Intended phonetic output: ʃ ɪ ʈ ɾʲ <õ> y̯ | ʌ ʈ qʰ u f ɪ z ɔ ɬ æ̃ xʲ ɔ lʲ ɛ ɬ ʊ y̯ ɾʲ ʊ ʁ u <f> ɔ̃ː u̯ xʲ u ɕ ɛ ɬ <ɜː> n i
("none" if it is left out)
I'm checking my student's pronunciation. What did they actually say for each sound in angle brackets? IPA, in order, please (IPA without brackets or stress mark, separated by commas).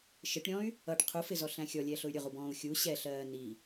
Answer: ɔ̃, b, ɜː